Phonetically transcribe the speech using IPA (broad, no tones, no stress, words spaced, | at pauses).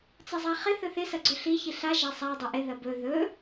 t͡sɐzˤaχɪ θɵθɪ sɐɡ͡ǀɵɬi çiɬa ʒasˤa dˤɪʔɪ ðɐbɵ ðɵ